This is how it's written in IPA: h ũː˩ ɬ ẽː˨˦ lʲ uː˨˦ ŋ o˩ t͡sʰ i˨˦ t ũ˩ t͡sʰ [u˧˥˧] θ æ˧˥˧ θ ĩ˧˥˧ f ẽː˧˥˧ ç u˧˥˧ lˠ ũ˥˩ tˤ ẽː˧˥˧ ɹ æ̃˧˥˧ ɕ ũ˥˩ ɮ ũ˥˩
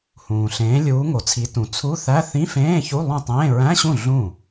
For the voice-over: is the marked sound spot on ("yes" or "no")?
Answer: yes